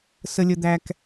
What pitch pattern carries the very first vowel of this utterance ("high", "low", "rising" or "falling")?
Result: low